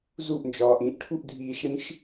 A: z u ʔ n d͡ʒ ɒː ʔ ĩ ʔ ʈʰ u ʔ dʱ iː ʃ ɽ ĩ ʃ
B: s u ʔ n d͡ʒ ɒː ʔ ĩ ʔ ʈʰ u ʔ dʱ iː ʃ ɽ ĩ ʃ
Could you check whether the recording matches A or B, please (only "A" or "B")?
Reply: A